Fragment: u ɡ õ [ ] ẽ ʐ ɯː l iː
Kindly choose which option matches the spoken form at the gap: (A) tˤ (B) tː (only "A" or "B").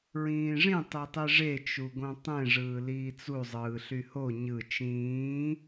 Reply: A